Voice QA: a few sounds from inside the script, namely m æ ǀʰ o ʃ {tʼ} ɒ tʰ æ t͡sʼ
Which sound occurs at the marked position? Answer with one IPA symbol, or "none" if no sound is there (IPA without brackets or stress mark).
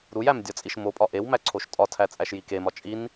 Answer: tʼ